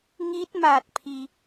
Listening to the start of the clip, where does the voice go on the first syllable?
rising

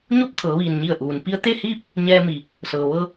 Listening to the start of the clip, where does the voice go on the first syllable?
falling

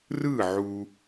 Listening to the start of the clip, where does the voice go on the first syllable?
falling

